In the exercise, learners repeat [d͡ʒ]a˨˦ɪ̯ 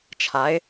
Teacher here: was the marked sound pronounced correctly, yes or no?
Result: no